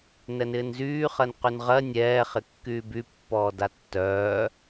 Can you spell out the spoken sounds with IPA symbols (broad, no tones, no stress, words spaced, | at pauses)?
nɛnɪːnzyːχɜn qynʁɜ nʲɛːχɪ kːyːbypːɔː datːœː